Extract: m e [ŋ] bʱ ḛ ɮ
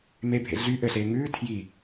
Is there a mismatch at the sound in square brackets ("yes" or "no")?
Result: yes